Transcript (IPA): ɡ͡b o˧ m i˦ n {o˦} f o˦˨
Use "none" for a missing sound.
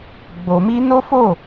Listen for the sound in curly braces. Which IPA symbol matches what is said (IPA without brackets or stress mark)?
o˦